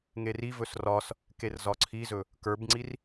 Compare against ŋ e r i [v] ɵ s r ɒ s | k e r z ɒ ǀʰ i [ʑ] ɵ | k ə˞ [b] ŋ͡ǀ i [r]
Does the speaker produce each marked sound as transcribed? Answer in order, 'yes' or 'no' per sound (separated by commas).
yes, no, yes, yes